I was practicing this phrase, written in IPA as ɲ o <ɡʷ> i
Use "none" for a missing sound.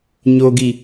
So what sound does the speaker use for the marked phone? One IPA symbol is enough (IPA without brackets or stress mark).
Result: ɡ